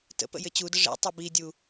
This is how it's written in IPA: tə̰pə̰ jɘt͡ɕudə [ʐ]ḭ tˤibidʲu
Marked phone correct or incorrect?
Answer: correct